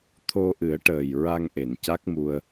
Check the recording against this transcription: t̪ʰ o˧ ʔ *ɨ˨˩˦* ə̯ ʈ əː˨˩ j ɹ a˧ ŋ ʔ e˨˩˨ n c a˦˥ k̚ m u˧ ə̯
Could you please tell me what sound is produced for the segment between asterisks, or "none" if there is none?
ɨ˨˩˦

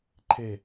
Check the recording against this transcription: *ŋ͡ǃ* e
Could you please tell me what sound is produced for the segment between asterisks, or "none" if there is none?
ǃʰ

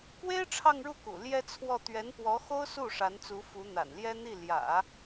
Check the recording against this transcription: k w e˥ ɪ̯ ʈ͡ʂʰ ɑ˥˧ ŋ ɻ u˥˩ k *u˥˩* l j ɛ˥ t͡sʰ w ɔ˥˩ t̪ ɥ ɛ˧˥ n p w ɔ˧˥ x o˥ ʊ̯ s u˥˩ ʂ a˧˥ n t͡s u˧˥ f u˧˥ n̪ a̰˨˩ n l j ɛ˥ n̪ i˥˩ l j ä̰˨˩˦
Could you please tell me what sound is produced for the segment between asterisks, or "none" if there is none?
ṵ˨˩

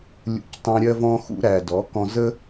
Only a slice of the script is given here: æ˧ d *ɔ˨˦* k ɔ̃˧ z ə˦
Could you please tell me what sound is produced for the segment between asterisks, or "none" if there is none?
ɔ˨˦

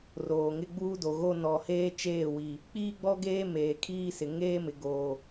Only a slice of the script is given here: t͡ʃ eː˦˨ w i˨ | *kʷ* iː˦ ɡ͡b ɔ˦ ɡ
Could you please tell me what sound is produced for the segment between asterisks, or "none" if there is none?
k͡p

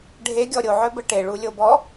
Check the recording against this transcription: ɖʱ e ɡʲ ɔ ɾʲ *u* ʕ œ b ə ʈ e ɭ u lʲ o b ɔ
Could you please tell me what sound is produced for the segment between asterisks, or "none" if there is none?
o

